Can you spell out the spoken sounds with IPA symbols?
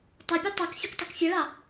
tˤ ɜ pʲ u tˤ ɑ k fʲ ʊ k tˤ ɪ k fʲ ʌ ɭ ɑ

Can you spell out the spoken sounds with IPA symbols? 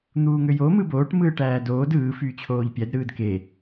n̪ uː ŋ ø j o m ɯ b oː ʈ m ɯː ʈ æː d oː d ɯː f yː t͡ɕʰ oː ʎ pʲ æ d ɾ ɯː d k e

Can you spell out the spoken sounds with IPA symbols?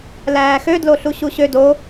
l æː x ø d l o ɬ u ɕ u ɕ ø d o

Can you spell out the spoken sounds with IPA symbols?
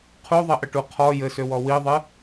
qʰ u ðˤ ɘ ʔ ə ʈ u qʰ ɔ j ɘ s ø w ɔ w i ðˤ ɨ

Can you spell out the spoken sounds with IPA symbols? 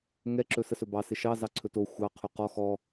ŋ ɛ ǁ ɵ s ə s ɵ b ɑ s ɪ ʃ ɑ z ɑ ǀʰ ɵ t o xʷ ɑ qʰ ɵ q ɔ x ɔ

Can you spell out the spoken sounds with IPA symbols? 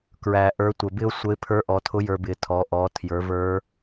k ɹ æ˩ ʔ ə˞˩˧ tʷ ə˩ b ɪ˥ ʊ̯ sʷ ə˧˥ ɪ̯ pʰ ə˞˧˥ ʔ ɔ˩˧ tʰ ʊ˧˥ j ə˞˧ b ɪ˩˧ tʰ ɔ˩˧ ʔ ɔ˩˧ tʰ j ə˞˩˧ v ə˞˧˥

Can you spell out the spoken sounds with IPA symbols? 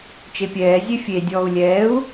t͡ʃ e pʲ ɛː zʲ e fʲ e dʲ ɔː u̯ lʲ ɛː u̯

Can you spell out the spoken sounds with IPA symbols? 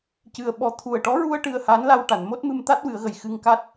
c ɨ˧ ə̯ ɓ ɔ˧ t̪ʰ u˨˩ ə̯ ʈ ɔ˧˥ ɹ u˧ ə̯ ʈ ɨ˧ ə̯ h a˧˥ n l a˧ w ʈ a˨˩˨ n m o˦˥ t̚ m ɨ˧ m t̪ a˦˥ t̚ w ɨ˨˩˦ ə̯ ɣ ə˨˩ j x ɨ˧ ŋ k a˦˥ t̚

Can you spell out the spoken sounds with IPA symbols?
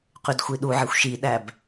q y d xʷ i ɗ u ʕ e xʷ ʃ i ɗ æ b

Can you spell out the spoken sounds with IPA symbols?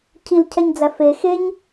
cʰ i l cʰ ɛ ɲ d͡z æ f e x e ɲ

